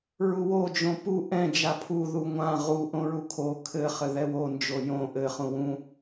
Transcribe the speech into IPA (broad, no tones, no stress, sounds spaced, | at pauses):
ɹ u w o d͡ʒ õ p u ʔ ɛ̃ d͡ʒ a pʰ u ð u ŋʷ ã ʁ u ʔ õ ɹ u kʰ o kʰ ɘ χ ɘ ð ɛ w o n d͡ʒ o j õ ʔ ɘ χ ũ w ũ